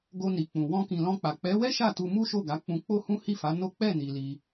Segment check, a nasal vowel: present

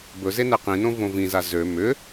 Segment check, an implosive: absent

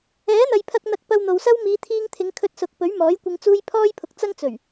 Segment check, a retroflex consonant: absent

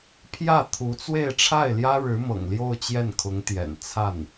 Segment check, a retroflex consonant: present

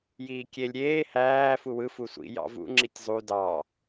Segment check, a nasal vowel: absent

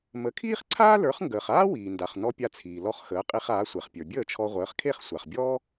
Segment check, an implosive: absent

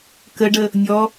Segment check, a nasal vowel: absent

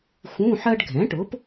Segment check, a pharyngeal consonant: present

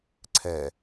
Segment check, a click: present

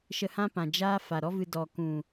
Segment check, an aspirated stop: absent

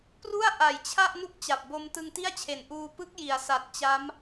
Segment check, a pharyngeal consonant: absent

